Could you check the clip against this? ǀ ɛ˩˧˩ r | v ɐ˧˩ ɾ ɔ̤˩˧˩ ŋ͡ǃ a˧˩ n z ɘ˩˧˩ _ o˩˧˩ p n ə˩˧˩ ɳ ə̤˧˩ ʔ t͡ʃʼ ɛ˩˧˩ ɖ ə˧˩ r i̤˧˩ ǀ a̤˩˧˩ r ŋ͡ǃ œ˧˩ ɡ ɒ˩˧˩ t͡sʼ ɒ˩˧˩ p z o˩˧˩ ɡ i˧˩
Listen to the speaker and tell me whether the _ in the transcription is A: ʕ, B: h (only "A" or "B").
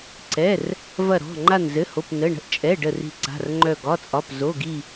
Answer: B